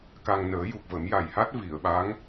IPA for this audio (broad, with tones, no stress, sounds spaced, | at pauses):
k a˧ ŋ n əː˨˩˦ j u˨˩ k̚ v ə˨˩˦ m j a˨˩ j h a˦˥ t̚ v i˨˩˨ ə̯ ɓ a˧˥ ŋ